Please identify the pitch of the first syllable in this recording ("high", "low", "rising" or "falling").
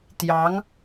rising